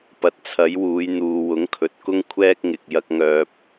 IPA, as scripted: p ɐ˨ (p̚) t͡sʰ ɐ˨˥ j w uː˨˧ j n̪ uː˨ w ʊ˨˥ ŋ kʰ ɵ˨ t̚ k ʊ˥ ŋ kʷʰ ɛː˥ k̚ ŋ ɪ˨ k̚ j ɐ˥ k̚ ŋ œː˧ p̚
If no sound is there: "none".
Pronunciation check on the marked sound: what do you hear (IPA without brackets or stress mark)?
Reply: t̚